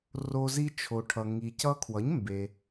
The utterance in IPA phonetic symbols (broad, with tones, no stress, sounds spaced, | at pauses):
r o˧ z i˧ t͡ʃʰ o˩ ʈʰ ʌ˩ ŋ i˩ c ʌ˧ kʰ w ʌ˩˥ ɲ m b e˩